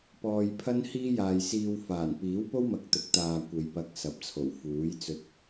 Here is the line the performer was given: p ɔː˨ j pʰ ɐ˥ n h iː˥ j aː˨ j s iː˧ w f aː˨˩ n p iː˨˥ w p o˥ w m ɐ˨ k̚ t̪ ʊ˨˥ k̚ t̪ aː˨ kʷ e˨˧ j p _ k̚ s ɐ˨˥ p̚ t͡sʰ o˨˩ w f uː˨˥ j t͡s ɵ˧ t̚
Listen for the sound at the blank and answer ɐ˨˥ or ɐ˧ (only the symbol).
ɐ˧